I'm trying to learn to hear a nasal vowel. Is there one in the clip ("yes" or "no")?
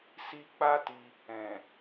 yes